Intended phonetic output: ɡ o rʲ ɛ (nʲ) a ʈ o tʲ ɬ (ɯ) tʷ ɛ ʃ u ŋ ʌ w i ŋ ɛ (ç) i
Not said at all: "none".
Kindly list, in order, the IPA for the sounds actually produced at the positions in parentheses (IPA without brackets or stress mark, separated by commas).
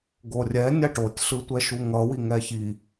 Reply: nʲ, ɯ, ç